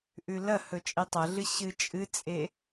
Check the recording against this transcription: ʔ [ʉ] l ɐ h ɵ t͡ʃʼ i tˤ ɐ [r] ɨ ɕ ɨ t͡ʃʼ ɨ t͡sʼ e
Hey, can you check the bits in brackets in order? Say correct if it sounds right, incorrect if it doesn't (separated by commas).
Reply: correct, incorrect